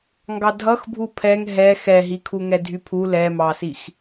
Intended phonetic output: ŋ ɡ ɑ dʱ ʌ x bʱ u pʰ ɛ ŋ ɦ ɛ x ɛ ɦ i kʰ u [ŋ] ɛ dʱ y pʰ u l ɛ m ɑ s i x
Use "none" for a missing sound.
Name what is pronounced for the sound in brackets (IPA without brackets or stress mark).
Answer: ŋ